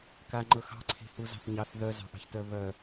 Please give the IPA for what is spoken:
kaŋ͡ǃɤ xɑ̤ǀʰe̤huzɑ̤θ ɲɑθ ðœzɑ̤ʔɑ̤ç tœβœ

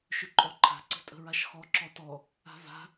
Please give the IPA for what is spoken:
ʃʏǃʼɔǃʰa̤ ǀə̤tʼə̤ɹaʃxɔ ǁɔtɔ | a̤va̤

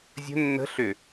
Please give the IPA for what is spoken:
zʲə̤ nːə̤ ɬʏ

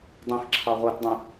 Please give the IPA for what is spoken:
dˤĩxǁʰɑ ʁʷætdˤĩ

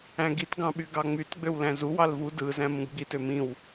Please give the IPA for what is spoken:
æ̃ɡit ɡɑ̃ɓyɡɑŋ͡myt ɡ͡bøwlæ̃zu wɑlvu dɯ zæ̃mũɡɡ͡bit ømĩw

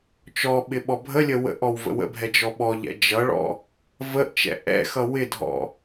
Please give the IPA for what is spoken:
t͡ʃɔɓɪ ɓɔbʱəlʲə wə̰ʔɔw və̰wə̰bʱɛ d͡ʒɔɓɔʎɛ̰ d͡ʒʌɭɔ̰ | vəʔ t͡ʃɛ̰ʔɛ̰xʌ wɪdʱɔ̰

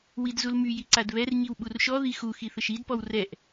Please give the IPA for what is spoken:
widzulmyji ǀadβɛrɲiw ɓurʃɔði xuxi θəʃidpɔw rɛʔ

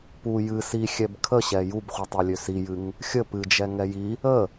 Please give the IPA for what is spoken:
pu jɨ sixʲɛb kʰəɕɛ jubχʷitˤilʲø sijɨŋ | xʲə pɨd͡ʒɛ ŋɛji | ə

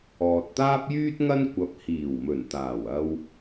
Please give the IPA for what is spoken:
ɔː˨t̚t̪aː˥p̚ jyː˥t̚ŋɐ˥n kʷɐ˧p̚ hiː˨˩w mɵ˨˩nt̪aː˨˩wɐ˧w

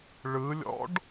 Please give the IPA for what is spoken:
ɭɯlʲɔ̰ɖ

